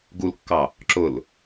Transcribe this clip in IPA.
ɡ u l kː ɑ | ǁ ʊ l

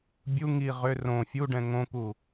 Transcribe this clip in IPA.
bʲ u ŋ i ʁ ʏ r õ fʲ u ɖ ɛ̃ ŋ õ k u

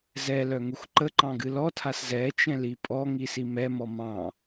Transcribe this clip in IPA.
z ɛ l œ ŋ u x ǃ ə ǃ ɑ̃ ɡ ɨ l ɔ tʰ a s z ɛ t͡ʃ ɛ̃ l i pʼ ɔ ŋ i s i m ɛ m ɔ m ɑ̃

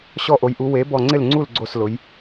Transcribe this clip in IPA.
ɕ ɔ˥˩ ʔ o˩˥ j ʔ u˩˥ w e˩˥ b ɔ˧˩ ŋ͡ǀ ɪ˥˩ l ŋ͡ǀ u˥˩ l ɡ͡ǀ o˥˩ s l ʊ˩˥ j

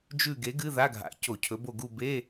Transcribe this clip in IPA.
d͡ʒ ʉ˦˨ ɡ e˨˥ ɡ ɨ˧˥˧ ð a˧˥˧ ɡʱ a̰˨˥ c o˧˩˧ cʰ ɵ˨˥ b o˦˨ ɡ u˦˨ b e˧˥˧

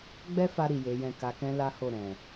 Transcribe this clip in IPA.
ɡ͡b ɛ˦ f a˧ ɾ i˨ j e˨˦ j ɛ̃˦˨ k a˧ k ɛ̃˦ l a˦ h o˦˨ ɾ ɛ̃˨

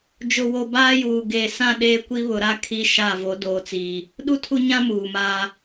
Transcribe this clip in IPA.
d͡ʒ ʊ˨ w o˨ b aː˦ j uː˨ ɡ eː˨ s ã˦˨ ɗ eː˦ kʷ i˦ β ʊ˨ ɾ a˦˨ kʰ i˦ ʃ a˦˨ v o˨˦ d oː˨ t͡s iː˨ | ɗ u˦ tʰ u˦ ɲ ã˦ m uː˨ m aː˦

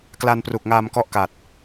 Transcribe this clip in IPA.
k l a˧ n p r u˨˩ k̚ ŋ aː˧ m k ɔ˦˥ ʔ k a˨˩ t̚

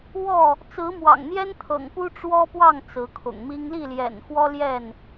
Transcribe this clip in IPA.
w ɔ˥˨ | t͡s ɹ̩˨˦ m w ɑ̰˨˩ ŋ n̪ j ɛ˦ n t̪ʰ ɤ̰˨˩ ŋ p u˦ ʈ͡ʂ w ɔ˦ p w ɑ˥˨ ŋ t͡s ɹ̩˨˦ kʰ ʊ̰˨˩ ŋ m i˦ ŋ l i˥˨ l j ɛ̰˨˩ n x w ɔ˦ l j ɛ˥˨ n

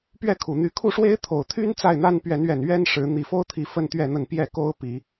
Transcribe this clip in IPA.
p ɥ ɛ˥˨ kʰ u˨˩ n̪ y˨˦ kʰ u˥˨ ʂ w e˦ ɪ̯ t̪ʰ o˨˩ ʊ̯ t̪ʰ y˦ n t͡s a˥˨ ɪ̯ n̪ a˦ n p ɥ ɛ˨˦ n ɥ ɛ˨˩ n ɥ ɛ˦ n ʂ ɻ̩˨˦ n̪ i˨˩ f o˦ ʊ̯ t̪ʰ i˨˦ f ə˦ n t̪ ɥ ɛ˥˨ n̪ ə˥˨ n p j ɛ˥˨ k o˦ ʊ̯ p i˨˦

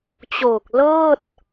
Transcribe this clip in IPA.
t͡ɕ oː˨˩ k̚ l ɤː˥˩ t̚

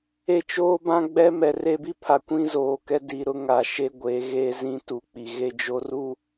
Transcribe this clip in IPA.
e˦ t͡ʃ oː˦ b ã˦ ɡ͡b ɛ˦ m ɛ˨ r e˦ b i˦ pʰ a˨ kʷ ĩ˦ z oː˨ k ɛ˦ d i˨ ɾ ʊ˦ ŋ a˨ ʃ e˦ ɡʷ e˨˦ ɣ e˦ z ĩ˦ t u˨ k͡p i˨ ɣ e˦ d͡ʒ o˦ r u˦

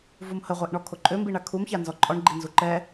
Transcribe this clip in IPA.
v u m h ə ʁʷ e ʔ ɳ ɔ kʰ o ǃʼ ø m b i ɳ a kʰ u m ç a n z ɔ ǃʼ ɔ ɳ ɡ͡ǃ i n z u ǃ ɛ

